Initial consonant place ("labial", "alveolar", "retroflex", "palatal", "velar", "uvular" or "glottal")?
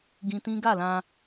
velar